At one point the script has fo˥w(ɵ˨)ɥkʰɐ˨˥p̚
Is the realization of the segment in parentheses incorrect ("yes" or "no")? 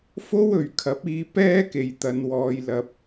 no